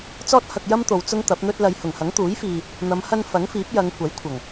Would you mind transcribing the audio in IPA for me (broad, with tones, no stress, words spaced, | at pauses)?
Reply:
t͡sɔː˥t̚hɐ˧k̚jɐ˥mt̪o˨w t͡sʊ˥ŋt̪ɐ˨˥p̚n̪ɵ˥t̚ lɐ˨˧jhʊ˨˩ŋhɐ˨˥ŋ t̪uː˨˥jfiː˨ | n̪ɐ˨˧m hɐ˥n fɐ˨˥ŋfiː˨˥p̚jɐ˨˧ŋ kʷɐ˨˥jkʷʰɐ˨˩ŋ